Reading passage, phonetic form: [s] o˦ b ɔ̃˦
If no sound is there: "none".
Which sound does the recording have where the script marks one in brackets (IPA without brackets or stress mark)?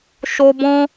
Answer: ʃ